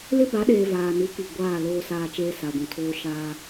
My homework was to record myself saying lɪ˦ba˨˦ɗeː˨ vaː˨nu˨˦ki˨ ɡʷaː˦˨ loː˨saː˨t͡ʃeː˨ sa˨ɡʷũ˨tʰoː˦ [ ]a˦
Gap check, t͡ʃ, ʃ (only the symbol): ʃ